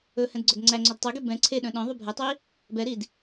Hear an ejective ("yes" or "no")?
no